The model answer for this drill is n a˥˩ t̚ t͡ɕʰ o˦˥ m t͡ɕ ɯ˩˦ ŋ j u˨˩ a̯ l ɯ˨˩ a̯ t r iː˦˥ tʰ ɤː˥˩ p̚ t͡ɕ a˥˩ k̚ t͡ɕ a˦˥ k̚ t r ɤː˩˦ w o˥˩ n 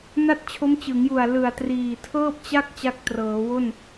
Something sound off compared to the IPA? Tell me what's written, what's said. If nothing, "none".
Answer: iː˦˥ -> iː˨˩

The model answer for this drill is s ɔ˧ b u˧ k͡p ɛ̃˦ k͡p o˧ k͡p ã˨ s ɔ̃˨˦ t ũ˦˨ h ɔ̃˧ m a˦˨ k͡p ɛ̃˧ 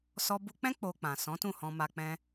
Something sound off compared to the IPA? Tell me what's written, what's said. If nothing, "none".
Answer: a˦˨ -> a˧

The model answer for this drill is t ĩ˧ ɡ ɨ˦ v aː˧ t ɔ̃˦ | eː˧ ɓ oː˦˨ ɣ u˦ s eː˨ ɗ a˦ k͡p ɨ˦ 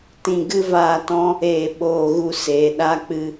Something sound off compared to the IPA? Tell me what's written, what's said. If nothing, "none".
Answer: none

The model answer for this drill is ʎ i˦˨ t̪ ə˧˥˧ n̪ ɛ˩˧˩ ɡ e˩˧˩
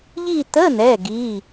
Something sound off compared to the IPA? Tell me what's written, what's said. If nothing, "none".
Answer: e˩˧˩ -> i˩˧˩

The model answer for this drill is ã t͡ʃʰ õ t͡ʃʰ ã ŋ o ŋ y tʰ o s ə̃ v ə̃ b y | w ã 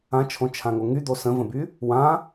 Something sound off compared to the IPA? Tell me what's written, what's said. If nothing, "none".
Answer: tʰ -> d̪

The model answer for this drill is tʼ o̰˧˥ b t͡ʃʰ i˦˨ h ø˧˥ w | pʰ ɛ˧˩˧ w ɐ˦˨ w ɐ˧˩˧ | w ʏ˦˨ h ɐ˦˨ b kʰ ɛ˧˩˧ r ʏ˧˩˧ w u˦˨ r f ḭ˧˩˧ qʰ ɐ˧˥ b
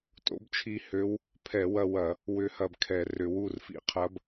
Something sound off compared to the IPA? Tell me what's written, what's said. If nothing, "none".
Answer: none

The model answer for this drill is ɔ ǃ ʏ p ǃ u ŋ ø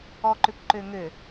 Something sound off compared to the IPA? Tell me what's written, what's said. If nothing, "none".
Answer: u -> ø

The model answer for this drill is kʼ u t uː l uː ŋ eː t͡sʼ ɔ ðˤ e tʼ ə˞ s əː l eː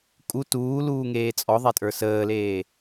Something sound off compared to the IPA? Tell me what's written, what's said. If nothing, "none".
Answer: none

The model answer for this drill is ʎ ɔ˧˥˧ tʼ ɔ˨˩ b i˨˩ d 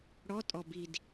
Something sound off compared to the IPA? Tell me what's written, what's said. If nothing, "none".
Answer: ʎ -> ɽ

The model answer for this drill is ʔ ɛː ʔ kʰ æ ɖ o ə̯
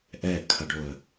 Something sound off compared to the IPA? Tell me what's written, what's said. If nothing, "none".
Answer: æ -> ɐ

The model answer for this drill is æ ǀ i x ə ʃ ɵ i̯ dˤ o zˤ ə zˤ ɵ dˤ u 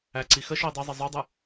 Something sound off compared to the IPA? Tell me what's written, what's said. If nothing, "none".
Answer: none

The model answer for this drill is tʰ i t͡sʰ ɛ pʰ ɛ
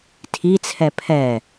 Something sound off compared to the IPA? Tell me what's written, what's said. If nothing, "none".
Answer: none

